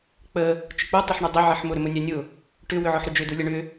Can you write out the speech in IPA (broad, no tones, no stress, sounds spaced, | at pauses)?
k͡p ə | t͡ʃ ʊ k͡p u tˤ ʏ ħ ɳ ʏ dˤ ə ʕ ɪ ħ m ʊ ɾ ʏ m ʊ nʲ a nʲ ʊ | ʈ ʏ w ʏ ʕ ɔ ħ ɾ ʏ d͡ʒ ʏ d u lʲ ə ɳ ʏ